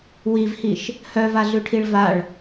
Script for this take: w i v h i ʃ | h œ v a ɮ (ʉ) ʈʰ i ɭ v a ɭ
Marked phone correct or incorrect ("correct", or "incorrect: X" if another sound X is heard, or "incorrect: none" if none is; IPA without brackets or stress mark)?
correct